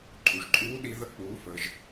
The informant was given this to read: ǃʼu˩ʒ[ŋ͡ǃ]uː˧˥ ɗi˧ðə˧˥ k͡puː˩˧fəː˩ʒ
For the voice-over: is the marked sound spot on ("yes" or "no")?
no